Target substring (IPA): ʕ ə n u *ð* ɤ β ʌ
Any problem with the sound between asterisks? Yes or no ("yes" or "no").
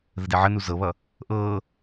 yes